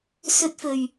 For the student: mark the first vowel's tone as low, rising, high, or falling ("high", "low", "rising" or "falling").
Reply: high